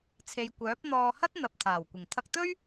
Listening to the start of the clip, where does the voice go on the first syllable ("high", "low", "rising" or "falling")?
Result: low